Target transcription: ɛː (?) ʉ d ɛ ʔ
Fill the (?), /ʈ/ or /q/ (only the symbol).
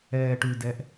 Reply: ʈ